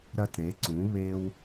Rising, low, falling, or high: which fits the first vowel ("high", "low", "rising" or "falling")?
high